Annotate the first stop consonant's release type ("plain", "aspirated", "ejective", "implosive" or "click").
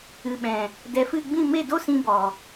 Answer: implosive